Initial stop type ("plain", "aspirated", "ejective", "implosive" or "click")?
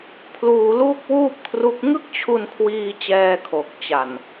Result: aspirated